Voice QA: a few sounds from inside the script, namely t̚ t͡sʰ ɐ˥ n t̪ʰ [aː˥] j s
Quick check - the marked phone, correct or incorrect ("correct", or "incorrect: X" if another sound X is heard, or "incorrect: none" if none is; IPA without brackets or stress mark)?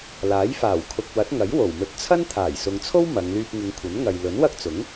incorrect: aː˨˩